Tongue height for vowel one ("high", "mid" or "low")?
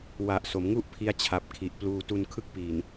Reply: low